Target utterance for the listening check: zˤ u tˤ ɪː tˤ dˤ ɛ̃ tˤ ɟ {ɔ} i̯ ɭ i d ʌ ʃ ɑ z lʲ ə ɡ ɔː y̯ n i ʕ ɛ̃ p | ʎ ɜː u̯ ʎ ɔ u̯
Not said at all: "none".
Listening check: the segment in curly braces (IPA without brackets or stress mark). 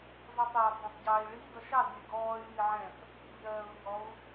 ɑ